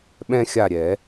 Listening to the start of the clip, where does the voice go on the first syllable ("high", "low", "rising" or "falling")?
high